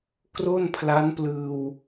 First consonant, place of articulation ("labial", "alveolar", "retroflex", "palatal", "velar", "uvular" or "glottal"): velar